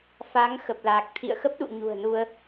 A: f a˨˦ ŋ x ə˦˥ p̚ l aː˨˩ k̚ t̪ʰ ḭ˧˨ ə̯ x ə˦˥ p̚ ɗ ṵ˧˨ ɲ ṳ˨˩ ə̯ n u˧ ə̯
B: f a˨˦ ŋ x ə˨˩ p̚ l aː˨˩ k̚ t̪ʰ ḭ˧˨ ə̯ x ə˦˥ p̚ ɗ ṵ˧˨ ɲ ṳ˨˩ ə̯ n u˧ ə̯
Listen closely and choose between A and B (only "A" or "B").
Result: B